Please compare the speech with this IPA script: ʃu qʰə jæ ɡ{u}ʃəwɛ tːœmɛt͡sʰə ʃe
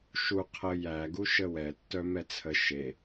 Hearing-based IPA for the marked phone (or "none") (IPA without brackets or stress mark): u